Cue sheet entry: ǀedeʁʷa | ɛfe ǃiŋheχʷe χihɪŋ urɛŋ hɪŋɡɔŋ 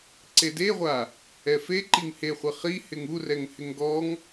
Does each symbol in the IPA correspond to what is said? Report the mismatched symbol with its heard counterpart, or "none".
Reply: none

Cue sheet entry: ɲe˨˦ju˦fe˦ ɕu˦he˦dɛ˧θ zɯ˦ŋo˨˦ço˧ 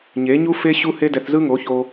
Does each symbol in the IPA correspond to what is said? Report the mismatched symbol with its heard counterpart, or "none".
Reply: j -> ɲ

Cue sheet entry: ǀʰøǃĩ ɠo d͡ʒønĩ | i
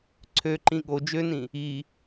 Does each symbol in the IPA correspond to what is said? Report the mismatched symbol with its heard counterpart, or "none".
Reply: none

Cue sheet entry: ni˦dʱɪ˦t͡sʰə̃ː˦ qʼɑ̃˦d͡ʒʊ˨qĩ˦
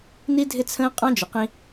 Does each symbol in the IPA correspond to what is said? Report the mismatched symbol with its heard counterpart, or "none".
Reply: none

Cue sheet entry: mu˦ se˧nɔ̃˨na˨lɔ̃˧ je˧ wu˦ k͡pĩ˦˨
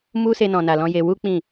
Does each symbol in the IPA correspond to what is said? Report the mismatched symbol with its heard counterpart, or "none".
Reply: none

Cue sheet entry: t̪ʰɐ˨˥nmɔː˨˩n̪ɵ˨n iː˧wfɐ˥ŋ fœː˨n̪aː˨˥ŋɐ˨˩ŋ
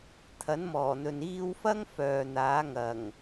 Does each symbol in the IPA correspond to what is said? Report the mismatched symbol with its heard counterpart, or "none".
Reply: none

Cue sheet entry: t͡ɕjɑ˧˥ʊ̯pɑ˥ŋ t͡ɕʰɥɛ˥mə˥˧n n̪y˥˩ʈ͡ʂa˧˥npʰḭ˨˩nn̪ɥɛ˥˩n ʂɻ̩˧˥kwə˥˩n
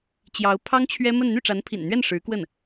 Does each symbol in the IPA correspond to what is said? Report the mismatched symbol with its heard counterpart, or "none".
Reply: p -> pʰ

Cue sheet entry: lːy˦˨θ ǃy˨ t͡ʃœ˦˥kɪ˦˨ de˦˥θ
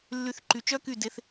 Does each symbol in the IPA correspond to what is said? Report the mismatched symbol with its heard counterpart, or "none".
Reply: ɪ˦˨ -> y˦˨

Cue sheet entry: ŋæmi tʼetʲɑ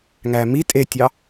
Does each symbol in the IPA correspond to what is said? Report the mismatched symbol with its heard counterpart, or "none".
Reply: none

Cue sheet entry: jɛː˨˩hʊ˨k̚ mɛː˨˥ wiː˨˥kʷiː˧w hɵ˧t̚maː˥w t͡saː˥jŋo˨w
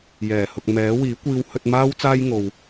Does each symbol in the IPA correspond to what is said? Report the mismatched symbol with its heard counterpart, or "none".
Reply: none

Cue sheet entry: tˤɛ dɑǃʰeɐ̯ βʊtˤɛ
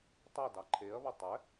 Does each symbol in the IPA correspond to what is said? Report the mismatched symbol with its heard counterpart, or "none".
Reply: none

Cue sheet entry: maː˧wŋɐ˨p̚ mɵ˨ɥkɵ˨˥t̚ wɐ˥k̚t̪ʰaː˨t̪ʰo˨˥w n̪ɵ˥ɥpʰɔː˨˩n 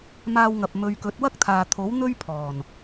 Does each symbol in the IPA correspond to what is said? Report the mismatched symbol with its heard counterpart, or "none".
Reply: none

